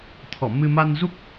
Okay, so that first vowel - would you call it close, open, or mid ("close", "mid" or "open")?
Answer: mid